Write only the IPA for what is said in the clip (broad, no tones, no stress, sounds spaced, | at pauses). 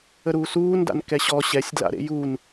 ə ɾ uː s uː n d a̰ n k ɛ ɕ ɔ ɕ ɛ sʲ d l a̰ ɾ ḛ j u n